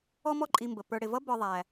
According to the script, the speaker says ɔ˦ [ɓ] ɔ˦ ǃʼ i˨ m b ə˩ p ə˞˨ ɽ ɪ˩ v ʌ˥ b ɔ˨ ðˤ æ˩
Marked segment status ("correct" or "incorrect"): incorrect